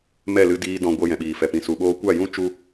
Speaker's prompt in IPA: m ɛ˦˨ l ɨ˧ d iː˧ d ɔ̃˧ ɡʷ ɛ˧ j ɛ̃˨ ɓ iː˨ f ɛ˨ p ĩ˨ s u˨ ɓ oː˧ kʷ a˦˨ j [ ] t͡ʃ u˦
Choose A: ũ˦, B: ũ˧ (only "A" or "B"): A